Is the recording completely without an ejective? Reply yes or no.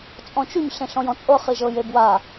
no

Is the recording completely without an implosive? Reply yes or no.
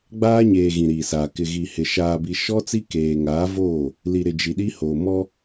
no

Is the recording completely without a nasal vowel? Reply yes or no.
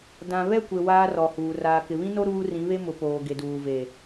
no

